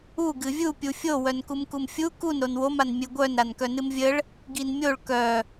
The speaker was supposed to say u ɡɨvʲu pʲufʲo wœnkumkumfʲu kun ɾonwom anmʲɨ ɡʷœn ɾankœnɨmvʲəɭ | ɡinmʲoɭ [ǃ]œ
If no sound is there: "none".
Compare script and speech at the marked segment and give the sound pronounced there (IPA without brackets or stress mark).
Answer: k